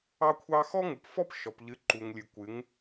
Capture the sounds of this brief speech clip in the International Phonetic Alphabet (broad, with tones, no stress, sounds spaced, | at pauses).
ɑ˦ kʷʰ ɑ˦ x ɔ˦ ŋ u˨ p f ɔ˦ p ʃ ɔ˨ p ʎ ɨ˨˦ ǃ u˨ ŋ lʲ ɨ˨ kʷ ɨ˨˦ ŋ